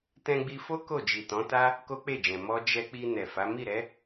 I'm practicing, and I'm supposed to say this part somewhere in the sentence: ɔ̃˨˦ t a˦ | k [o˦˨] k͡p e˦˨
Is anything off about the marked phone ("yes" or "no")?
yes